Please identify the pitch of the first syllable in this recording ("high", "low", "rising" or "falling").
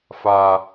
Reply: low